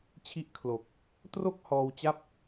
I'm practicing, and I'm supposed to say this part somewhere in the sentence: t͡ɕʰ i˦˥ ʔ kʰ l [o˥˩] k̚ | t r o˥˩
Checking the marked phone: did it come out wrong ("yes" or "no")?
yes